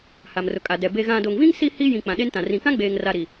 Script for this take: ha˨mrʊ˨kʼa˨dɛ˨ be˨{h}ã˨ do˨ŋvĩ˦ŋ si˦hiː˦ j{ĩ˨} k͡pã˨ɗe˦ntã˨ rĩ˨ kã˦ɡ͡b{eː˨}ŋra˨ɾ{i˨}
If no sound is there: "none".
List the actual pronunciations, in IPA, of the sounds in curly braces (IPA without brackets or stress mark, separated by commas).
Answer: ɣ, ĩ˨, eː˨, i˨